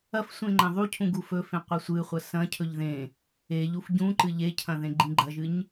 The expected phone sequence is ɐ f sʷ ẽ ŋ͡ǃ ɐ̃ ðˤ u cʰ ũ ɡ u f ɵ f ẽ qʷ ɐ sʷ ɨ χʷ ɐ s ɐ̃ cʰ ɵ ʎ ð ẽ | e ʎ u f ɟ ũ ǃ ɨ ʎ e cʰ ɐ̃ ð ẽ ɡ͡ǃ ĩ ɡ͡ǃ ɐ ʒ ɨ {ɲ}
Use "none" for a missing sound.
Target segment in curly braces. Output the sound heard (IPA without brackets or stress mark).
ɲ